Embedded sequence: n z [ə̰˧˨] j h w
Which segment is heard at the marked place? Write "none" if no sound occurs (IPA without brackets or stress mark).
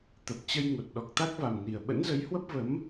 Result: ə˨˦